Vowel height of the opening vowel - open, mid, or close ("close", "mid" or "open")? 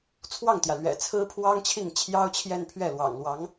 open